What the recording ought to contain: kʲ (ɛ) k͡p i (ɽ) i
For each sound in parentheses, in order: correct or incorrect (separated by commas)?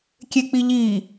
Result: incorrect, incorrect